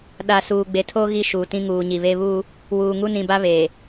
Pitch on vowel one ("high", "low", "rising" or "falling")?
low